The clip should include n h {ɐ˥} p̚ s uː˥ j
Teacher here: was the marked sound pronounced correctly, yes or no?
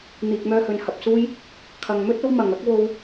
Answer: no